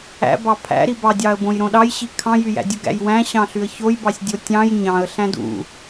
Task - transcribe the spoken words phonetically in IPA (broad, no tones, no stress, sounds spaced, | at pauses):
æ̰ b ɑ pʰ æ̰ ɾ i b ɑ dʲ ɑ ə̯ b õ j ɾ õ ɗ ɑ j ɕ i kʰ ɑ̃ j y j æ̰ dʲ u ɡ æ̰ j w æ̃ ɕ ɑ̃ ɬ y ə̯ ç o j b ɑ sʲ dʲ o tʲ ɑ̃ j ɲ ɑ̃ ə̯ ɬ æ̃ d ṵ